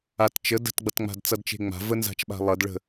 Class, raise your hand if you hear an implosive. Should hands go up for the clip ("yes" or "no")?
yes